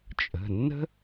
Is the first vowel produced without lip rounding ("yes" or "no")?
yes